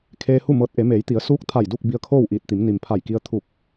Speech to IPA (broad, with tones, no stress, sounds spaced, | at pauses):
kʰ eː˧ h u˥˨ m ɤː˧˥ t̚ ʔ e˩˧ m eː˩˧ j t̪ i˩˧ ə̯ s uː˧˥ k̚ t̪ʰ a˧˩ j d u˥˨ k̚ b i˧ ə̯ kʰ oː˥˨ w ʔ iː˧˩ t̚ t̪ i˩˧ m n i˩ m pʰ a˧˩ j k i˧ ə̯ t̪ʰ u˧˩ k̚